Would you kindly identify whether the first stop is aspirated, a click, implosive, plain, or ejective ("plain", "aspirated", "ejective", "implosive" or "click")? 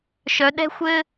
implosive